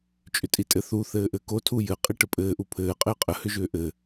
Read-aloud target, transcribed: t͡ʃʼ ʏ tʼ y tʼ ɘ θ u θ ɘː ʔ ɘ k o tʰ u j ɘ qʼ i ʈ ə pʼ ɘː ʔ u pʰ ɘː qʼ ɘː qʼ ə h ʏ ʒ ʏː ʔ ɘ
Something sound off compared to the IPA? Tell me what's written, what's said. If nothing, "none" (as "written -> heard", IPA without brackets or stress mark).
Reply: y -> i